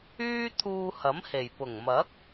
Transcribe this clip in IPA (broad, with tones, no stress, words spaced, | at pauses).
yː˥t̪ʰuː˧hɐ˨˥mhe˨˩j pʊ˨˩ŋmɐ˨˥k̚